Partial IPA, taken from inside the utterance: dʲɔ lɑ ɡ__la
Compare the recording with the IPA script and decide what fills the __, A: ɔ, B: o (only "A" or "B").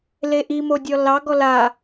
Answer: A